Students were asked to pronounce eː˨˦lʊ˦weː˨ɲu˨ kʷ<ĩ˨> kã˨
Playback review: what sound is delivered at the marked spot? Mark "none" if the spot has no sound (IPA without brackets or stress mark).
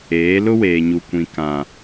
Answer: ĩ˨